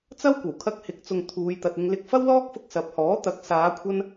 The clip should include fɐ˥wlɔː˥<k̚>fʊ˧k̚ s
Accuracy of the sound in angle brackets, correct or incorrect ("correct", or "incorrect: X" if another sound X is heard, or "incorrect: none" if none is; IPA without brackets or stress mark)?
correct